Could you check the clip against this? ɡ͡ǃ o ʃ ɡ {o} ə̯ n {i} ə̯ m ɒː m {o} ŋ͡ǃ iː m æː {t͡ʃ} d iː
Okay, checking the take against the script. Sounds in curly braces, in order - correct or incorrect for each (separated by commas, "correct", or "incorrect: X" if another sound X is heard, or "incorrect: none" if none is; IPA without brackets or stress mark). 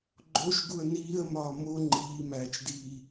incorrect: u, incorrect: iː, correct, correct